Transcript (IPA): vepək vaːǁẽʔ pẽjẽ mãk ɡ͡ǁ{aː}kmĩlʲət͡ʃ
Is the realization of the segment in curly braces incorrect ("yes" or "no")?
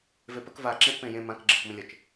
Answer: yes